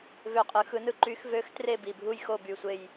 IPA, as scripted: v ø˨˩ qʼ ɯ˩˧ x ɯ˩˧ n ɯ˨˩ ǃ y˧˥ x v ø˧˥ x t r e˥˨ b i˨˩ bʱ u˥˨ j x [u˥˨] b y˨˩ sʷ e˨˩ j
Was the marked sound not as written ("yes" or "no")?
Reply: yes